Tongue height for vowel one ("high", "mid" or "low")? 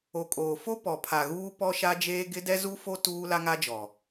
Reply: mid